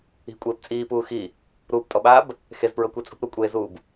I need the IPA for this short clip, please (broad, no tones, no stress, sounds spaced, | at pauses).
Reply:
i̤ kʷʼ eː p t͡sʼ iː p uː x i | ɾ uː p tʼ ɔ ɓ aː b | x e z p ɹ ɤ kʷ e t͡sʼ ṳ p ɾ u kʷʼ eː z uː b